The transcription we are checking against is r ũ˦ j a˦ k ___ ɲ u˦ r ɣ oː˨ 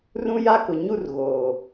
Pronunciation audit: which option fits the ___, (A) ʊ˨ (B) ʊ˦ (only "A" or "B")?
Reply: A